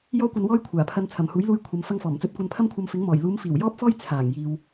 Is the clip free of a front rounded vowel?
yes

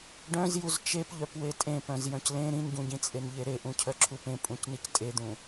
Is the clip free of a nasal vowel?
no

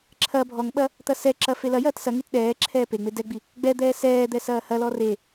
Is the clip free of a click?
no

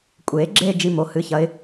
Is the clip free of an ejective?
no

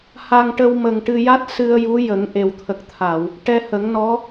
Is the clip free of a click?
yes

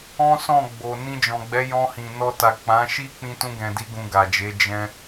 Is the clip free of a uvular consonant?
yes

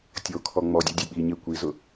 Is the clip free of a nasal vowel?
yes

